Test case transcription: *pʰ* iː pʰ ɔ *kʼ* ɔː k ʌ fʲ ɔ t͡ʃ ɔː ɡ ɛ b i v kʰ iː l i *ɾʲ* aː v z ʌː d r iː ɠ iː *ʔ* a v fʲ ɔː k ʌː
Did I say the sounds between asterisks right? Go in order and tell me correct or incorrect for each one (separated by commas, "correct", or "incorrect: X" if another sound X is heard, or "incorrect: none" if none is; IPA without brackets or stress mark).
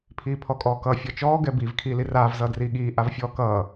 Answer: correct, correct, incorrect: r, correct